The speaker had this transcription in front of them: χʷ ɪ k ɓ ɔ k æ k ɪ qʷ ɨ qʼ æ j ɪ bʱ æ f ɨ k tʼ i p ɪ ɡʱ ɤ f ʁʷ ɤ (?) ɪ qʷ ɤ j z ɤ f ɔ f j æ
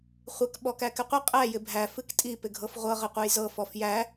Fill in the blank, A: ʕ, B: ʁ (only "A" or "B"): B